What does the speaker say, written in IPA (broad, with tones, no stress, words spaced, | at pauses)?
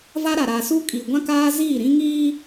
va˦ɾa˨ɾaː˨su˦ kʼi˨ɡʷã˦kaː˦ ziː˦˨ ɾĩ˦ ŋiː˦